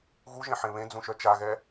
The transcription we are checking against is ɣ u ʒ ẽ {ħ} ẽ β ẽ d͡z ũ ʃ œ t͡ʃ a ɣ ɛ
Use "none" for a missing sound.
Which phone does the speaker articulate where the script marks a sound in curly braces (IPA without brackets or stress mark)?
ħ